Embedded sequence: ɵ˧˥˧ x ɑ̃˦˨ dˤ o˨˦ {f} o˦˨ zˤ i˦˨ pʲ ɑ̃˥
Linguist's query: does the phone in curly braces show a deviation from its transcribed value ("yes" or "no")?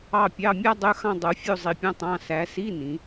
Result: yes